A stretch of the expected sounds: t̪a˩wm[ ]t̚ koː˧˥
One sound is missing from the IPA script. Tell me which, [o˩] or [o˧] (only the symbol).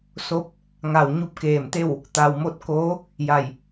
o˧